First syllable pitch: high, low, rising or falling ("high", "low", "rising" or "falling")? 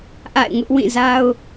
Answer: falling